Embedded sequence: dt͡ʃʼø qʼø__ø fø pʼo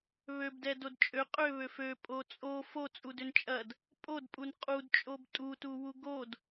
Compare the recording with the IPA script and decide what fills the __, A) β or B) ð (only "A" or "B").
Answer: A